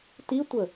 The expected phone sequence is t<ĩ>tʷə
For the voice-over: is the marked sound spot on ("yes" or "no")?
no